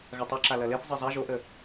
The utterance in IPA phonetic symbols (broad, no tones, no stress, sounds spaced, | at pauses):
ɣ ɐ tˤ o ǁ a l ɐ l e θ zˤ e zˤ a ʒ o ʔ ə